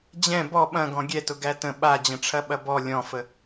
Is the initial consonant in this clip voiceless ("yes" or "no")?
no